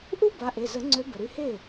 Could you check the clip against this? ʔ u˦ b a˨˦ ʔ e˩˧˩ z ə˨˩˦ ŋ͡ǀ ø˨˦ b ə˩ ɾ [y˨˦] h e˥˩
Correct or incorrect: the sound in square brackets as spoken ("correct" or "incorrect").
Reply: correct